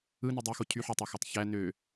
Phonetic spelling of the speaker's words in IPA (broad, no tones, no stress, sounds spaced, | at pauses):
ɯ n y dˤ y x o cʰ y ħ o tˤ æ x æ tˤ ç æ n ø